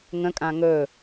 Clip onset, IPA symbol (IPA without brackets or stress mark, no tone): ŋ